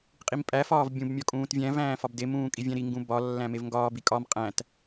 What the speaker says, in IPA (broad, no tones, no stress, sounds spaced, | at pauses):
qʼ i m pʼ æ f ɒː v bʲ ũ b mʲ ɒ kʼ ũː t vʲ æ̃ v æ̃ː f ɒ b d e m ũː kʼ i vʲ æ̃ ɾ i ŋ ɡ ũ b ɒ lː æ̃ m e v ŋ ɡ ɒː b i kʼ ɒ m qʼ æ̃ t